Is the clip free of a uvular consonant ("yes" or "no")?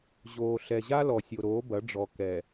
yes